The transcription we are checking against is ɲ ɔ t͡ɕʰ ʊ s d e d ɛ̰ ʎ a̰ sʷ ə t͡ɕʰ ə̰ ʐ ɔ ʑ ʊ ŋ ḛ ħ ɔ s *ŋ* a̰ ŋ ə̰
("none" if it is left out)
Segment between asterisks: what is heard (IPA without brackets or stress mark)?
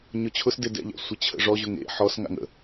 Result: ŋ